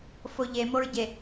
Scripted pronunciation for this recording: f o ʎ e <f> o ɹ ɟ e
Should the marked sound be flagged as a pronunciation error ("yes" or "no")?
yes